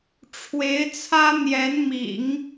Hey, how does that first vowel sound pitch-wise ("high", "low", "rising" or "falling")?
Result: rising